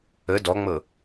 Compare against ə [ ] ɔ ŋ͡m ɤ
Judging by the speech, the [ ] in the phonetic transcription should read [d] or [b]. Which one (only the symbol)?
d